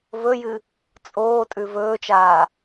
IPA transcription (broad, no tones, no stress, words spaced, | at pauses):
vɵjɨ | t͡sʼoːtʼʉ vɵːt͡ʃaː